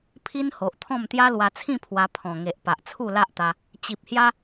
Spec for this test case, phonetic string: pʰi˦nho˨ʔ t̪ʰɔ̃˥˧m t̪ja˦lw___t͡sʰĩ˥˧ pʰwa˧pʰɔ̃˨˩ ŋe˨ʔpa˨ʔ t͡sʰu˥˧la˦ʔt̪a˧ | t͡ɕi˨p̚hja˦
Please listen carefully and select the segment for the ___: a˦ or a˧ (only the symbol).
a˧